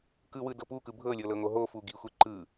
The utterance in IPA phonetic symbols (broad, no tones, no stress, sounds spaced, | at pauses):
k ɯ w ɯ d ɤ p u k ɯ bʱ ɤ lʲ ɤ l ɤ ŋ o ɦ o f u ɡ i xʷ e ǃ ɯ